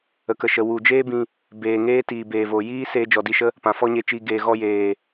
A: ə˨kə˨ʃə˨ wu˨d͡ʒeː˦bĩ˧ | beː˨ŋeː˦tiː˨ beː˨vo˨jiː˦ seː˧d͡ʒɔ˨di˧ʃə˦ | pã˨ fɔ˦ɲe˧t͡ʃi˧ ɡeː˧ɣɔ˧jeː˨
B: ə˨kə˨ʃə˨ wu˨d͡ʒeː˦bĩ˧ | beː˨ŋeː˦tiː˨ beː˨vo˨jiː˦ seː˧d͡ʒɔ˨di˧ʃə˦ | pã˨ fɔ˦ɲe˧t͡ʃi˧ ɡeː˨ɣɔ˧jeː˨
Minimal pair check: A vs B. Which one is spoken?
B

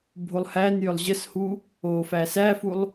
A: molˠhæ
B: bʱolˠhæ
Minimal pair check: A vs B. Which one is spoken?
B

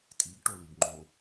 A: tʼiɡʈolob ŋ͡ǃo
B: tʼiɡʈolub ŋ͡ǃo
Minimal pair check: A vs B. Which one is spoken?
B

